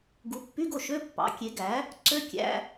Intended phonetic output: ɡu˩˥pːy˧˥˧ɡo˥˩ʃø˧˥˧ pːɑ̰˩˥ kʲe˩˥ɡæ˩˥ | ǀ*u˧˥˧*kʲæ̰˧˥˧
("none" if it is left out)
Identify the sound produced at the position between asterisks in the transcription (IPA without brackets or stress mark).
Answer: ø˧˥˧